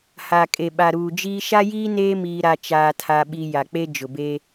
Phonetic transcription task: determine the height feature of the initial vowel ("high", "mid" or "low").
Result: low